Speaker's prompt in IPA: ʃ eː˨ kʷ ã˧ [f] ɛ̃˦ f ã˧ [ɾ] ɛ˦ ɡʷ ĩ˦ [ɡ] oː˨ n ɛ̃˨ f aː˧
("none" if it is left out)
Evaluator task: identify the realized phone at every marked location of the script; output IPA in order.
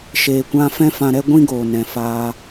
f, ɾ, ɡ

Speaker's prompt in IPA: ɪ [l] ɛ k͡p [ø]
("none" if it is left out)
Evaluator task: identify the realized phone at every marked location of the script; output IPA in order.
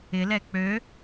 l, ø

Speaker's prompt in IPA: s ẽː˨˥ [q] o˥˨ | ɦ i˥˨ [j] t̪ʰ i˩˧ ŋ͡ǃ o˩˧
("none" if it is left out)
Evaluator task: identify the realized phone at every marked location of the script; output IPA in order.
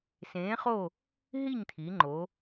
χ, ɲ

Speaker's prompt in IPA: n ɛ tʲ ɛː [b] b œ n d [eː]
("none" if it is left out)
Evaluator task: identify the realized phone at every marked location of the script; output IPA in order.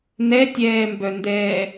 m, ɛː

